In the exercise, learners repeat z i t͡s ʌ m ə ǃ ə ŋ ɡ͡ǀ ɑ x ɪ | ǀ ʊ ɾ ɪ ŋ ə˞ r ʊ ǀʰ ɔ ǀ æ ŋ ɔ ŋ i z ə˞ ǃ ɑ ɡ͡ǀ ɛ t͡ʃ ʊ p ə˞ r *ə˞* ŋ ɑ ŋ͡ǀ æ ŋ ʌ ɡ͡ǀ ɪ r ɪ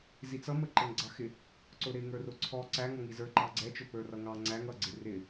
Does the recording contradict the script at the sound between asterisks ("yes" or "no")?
yes